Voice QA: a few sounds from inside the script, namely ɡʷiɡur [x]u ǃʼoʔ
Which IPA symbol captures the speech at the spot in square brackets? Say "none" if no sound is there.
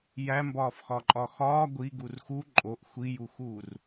x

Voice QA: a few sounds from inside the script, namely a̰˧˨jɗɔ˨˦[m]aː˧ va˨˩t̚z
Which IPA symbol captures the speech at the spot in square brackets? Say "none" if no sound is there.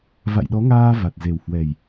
ŋ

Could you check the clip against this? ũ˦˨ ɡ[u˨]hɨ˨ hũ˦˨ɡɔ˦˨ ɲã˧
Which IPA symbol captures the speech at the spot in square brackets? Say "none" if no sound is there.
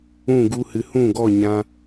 u˧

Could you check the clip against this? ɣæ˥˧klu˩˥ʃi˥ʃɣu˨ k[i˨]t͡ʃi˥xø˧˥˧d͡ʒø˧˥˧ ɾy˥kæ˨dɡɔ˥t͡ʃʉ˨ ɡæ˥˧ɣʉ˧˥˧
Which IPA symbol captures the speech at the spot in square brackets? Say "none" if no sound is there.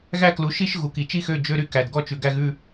i˨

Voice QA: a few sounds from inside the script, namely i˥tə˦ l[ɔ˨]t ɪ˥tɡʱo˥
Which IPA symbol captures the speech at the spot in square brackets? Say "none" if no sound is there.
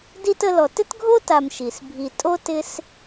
ɔ˨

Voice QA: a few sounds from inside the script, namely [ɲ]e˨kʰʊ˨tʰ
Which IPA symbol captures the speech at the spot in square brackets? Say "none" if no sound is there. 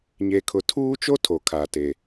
ɲ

